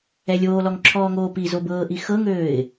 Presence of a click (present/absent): present